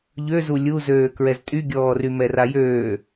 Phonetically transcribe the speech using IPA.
ʎ ø z u lʲ u z øː k ɹ ɛ z tʼ y ɡʲ ɔː r y m ɛ r a j øː

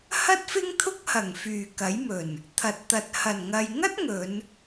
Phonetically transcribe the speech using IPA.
h ɐ˥ t̚ f ɪ˥ ŋ t̪ʰ ʊ˥ k̚ h ɐ˨˩ ŋ f yː˨˩ k ɐ˨˥ j m ɵ˨˩ n | t̪ʰ ɐ˨ t̚ t̪ ɐ˨ t̚ h ɐ˨˩ n ŋ ɐ˨ j ŋ ɐ˥ t̚ ŋ ɵ˨˧ n

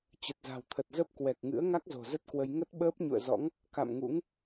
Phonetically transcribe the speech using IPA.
t͡ɕ ə˨˩ t̚ z a̤˨˩ w t̪ʰ ə˨˩ t̚ z ə˦˥ p̚ k w ɛ˨˩ k̚ ŋ ɨ̰˧˥ ə̯ ŋ a˦˥ k̚ z o̤˨˩ z ə˦˥ t̚ k w ə˧ j ŋ ə˦˥ t̚ ɓ əː˦˥ p̚ ɲ ṵ˧˨ ə̯ z ɔ̰˧˥ ŋ | k a̰˧˨ m ŋ ṵ˧˥ ŋ

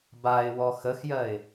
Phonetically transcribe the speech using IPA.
b a ɪ̯ w ɔ x ə x j ɜ ɪ̯

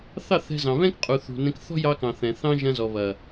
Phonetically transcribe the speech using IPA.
θ ɑ˦˨ θ ɛ̤˧ z ɑ̃˨ β ɛ̃˦ k qʼ u˨ θ ṳ˨ n ɛ̃˧ k θ ɔ̤˦ j ɑ˧ k ɑ̃˨ θ ɛ̃˨ θ ɑ̃˦ ʒ ɐ̃˧ z ɔ˨ β ɐ˨

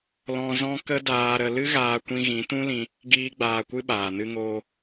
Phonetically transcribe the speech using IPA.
l ɔ̃˧ z ɔ̃˦ k ə˦ d aː˧ ɾ ə˧ l ɨ˦ ɣ aː˧ kʷ ĩ˧ ɣ ĩ˨˦ t ũ˦ l ĩ˧ | ɡ iː˦ ɡ͡b aː˧ kʷ ɨ˦ ɓ aː˨ n ɨ˧ ŋ oː˧

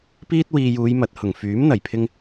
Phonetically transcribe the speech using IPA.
p iː˥ t̚ w iː˧ j uː˨˧ j m ɐ˨ t̚ h ʊ˨˩ ŋ f yː˨˥ m n̪ ɐ˨˩ j pʰ ɪ˧ ŋ

